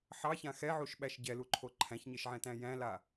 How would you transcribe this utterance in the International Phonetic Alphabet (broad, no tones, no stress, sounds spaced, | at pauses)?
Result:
ħ ɑ ç ã x ɛ ʕ u ʃ ɓ æ ʃ ɟ ɛ l u ǃʰ o ǃʰ æ̃ ç ɲ e ʃ ʕ ɛ̃ t æ̃ j æ̃ l a